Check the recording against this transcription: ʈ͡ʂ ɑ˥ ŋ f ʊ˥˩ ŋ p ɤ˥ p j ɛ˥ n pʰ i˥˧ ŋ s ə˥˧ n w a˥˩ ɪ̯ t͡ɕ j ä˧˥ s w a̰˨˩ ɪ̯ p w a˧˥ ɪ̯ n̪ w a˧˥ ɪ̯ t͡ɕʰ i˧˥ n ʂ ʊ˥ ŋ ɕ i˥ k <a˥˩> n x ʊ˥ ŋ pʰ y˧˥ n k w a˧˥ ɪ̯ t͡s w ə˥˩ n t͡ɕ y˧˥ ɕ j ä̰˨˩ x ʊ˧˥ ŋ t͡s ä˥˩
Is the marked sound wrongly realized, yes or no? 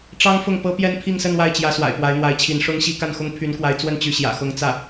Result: no